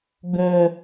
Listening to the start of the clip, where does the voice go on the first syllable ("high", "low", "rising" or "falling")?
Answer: low